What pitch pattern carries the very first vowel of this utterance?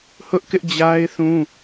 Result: high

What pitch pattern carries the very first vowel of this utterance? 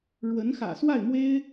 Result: rising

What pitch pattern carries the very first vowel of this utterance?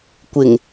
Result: low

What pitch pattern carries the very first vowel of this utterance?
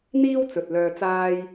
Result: high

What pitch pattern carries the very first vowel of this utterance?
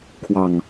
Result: low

